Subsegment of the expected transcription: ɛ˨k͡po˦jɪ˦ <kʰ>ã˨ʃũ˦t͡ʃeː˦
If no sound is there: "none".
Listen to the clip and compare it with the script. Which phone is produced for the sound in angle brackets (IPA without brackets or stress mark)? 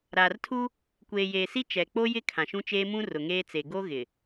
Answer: kʰ